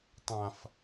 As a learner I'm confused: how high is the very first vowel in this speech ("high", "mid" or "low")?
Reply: low